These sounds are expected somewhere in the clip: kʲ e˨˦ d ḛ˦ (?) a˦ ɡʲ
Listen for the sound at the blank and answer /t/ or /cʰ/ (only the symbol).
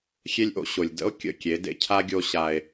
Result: cʰ